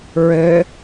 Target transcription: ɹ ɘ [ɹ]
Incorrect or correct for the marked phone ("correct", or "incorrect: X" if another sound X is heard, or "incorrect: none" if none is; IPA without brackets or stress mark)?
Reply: incorrect: none